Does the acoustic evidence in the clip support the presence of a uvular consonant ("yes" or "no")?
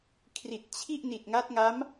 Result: no